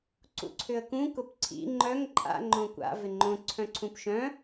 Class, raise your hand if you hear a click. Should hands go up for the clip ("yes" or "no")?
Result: yes